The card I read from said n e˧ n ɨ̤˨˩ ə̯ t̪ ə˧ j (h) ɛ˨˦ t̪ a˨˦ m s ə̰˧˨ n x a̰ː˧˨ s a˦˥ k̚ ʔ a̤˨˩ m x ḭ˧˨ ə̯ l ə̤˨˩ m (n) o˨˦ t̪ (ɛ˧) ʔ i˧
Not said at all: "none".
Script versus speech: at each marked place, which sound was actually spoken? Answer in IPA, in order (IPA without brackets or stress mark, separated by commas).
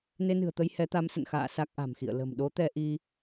h, ɗ, ɛ˧